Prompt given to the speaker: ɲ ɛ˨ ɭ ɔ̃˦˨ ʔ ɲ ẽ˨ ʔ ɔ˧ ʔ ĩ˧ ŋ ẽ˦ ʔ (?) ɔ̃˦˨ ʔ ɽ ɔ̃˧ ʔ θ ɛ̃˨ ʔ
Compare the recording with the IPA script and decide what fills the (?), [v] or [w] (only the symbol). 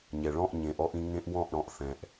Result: w